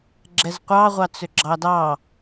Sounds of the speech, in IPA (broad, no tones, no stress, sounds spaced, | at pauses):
ɡ͡ǁ ɛ z qʷ ɑ ʁʷ ɑ t͡s ʏ ɡ͡ǁ ɑ d ɑ